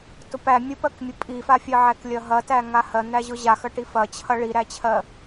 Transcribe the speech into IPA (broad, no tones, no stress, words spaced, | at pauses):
tʊpæ mʲʊpɜkmʲʊ pʼifafʲɜʕæk lʲɐɦɐtæ ŋahɜn̪æʑʊ ʑaxɐʈi fɐt͡ɕʰɐ ɭiɾæt͡ɕʰɜ